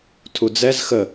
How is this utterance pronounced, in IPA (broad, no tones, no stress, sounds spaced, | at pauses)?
tʰ u d͡z ɛ z x ə